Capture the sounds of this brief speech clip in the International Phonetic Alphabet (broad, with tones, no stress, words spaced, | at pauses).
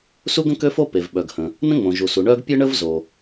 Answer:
su˥ɡə̃˥kø˥fo˥ pe˩vɓœ˩ɡhə̃˩ | nə̃˥ŋ͡mõ˩ʒu˩su˩ ɳœ˥ɡ pʲʊ˥ ɳə˥vzo˩